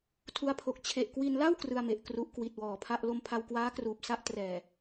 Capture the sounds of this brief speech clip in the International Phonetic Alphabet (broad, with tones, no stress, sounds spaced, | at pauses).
tʰ u˧ a̯ pʰ o˨˩ k̚ t͡ɕʰ e˨˩ ʔ k w i˧ n l a˥˩ w k r ɯ˧ a̯ m e˨˩ ʔ k r u˦˥ ʔ k w i˨˩ t̚ w ɔː˨˩ pʰ a˥˩ ʔ l o˧ m pʰ a˧ w k w aː˦˥ k r uː˨˩ p̚ s a˥˩ ʔ t r ɛː˨˩